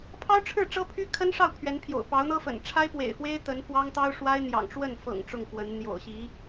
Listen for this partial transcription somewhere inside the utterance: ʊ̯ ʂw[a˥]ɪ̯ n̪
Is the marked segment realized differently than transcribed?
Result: no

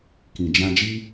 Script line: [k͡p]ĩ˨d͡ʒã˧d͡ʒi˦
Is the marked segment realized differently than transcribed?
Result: yes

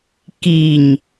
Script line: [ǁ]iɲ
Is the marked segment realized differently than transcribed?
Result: yes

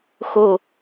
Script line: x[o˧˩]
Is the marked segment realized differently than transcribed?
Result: no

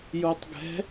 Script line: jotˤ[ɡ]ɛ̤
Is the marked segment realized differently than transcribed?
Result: no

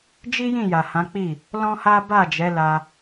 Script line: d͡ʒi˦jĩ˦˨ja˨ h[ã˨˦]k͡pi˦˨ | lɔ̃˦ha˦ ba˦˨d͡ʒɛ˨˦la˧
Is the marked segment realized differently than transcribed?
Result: no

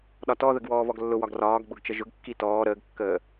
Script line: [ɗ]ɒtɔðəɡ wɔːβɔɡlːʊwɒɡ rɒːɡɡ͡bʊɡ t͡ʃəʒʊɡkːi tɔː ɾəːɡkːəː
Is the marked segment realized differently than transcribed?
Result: no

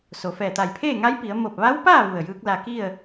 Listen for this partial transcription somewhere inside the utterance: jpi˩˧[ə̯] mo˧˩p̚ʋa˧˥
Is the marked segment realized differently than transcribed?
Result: no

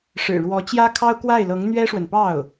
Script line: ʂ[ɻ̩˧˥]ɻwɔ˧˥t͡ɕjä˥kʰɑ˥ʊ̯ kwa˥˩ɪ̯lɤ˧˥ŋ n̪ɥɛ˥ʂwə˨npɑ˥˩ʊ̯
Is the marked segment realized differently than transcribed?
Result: yes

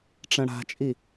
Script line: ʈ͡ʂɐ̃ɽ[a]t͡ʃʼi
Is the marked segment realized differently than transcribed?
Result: yes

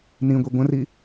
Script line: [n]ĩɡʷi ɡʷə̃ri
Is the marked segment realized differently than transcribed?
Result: no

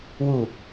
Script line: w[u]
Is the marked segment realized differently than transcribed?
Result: no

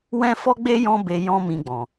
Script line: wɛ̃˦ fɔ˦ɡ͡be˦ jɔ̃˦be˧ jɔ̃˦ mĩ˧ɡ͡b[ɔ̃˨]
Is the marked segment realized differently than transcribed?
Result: no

